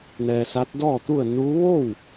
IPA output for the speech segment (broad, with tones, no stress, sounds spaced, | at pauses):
n ɛː˧ s a˧˥ t̚ d ɔː˥˨ t̪ u˥˨ ə̯ n uː˧˥ ʋ o˥˨ w